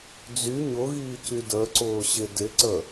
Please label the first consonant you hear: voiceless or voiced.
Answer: voiced